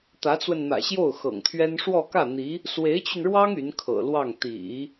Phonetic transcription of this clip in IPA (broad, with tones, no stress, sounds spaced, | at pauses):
t̪ ä˧˥ t͡s w ə˧ n n̪ ä̰˨˩ ɕ j o˥˩ ʊ̯ x ɤ̰˨˩ ŋ t̪ʰ ɥ ɛ˥ n ʂ w ɔ˥˧ k ä˥˩ n̪ i˧˥ | s w e˧˥ ɪ̯ t͡ɕ y˧ n ɻ w ɑ˥ ŋ y˧˥ n kʰ ɤ̰˨˩ l w ɑ˥˩ ŋ t̪ ḭ˨˩˦